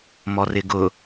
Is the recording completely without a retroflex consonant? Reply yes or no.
yes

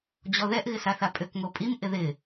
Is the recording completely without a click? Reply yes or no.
yes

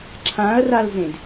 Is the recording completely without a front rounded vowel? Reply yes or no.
yes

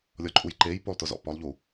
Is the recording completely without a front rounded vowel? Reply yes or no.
yes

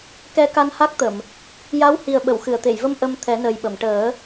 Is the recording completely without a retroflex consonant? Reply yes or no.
no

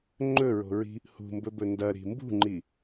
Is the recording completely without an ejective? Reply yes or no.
yes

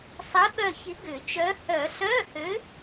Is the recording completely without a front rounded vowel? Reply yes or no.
no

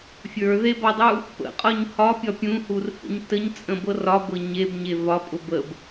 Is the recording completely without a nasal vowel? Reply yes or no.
no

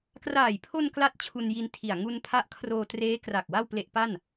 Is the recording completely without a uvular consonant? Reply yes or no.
yes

